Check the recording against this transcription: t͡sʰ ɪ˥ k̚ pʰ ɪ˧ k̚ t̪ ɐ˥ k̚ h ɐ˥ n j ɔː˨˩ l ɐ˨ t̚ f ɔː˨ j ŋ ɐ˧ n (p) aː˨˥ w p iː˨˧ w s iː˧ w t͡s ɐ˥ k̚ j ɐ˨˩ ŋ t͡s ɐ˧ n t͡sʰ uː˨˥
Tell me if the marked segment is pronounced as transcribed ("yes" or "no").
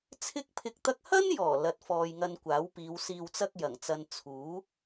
no